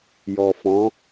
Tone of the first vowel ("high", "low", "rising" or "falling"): low